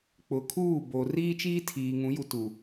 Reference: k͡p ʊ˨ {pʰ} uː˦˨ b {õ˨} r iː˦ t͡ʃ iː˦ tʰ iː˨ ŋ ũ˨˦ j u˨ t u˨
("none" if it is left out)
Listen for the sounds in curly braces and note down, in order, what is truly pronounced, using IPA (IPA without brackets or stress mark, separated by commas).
kʰ, o˨